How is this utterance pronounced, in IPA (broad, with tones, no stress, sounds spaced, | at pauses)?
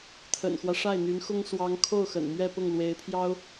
t̪ʰ ə̰˨˩ n x w ä˦ ʂ a˥˩ ɪ̯ n̪ y˧˥ n x ʊ˥ ŋ s w ɑ˧˥ ŋ kʰ o˥˩ ʊ̯ x ə̰˨˩ n m ɥ ɛ˥˧ p ʊ˥˩ ŋ l w e˧˥ ɪ̯ pʰ j ɑ˥ ʊ̯